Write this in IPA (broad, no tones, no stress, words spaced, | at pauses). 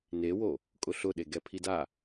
newo | kʼʊɬʊɗe ɡɛpʰida